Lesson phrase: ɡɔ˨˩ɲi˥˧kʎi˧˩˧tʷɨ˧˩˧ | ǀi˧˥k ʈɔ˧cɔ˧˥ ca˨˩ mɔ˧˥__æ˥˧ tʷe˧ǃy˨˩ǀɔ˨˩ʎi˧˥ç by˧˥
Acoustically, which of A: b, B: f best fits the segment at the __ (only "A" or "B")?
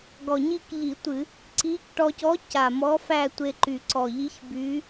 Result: B